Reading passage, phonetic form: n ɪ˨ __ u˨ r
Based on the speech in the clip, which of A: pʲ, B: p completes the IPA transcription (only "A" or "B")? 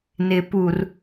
B